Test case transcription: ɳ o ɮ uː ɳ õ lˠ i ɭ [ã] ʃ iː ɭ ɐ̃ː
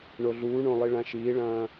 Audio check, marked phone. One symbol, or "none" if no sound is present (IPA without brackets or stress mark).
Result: ã